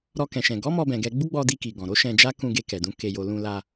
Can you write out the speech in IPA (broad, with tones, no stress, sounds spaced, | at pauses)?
ɾ ɔ˧ k ɛ̃˨ ʃ ɛ̃˨ ɡ ɔ˨˦ m ɔ˧ b ɛ̃˨ ɡ ɛ˧ ɡ͡b u˦ ɡ͡b ɔ˧ d i˧ k i˨ ɡ ɔ̃˨ ɾ o˨˦ ʃ ɛ̃˧ d͡ʒ a˦ k ũ˧ ɡ e˧ k ɛ˨ d ũ˨˦ k e˧ j o˧ l ũ˧ l a˧